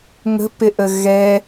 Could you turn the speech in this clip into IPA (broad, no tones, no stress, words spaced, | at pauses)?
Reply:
ŋə̤pɪʔə ɣɛ